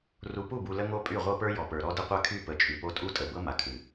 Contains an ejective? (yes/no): yes